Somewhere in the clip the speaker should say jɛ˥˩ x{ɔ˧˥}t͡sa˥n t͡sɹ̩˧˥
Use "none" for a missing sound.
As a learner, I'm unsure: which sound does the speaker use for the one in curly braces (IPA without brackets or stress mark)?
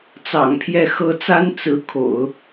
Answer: ɤ˧˥